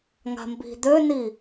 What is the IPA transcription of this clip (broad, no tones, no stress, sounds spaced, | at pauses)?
ŋ a̤ m b i̤ d̪ ø n i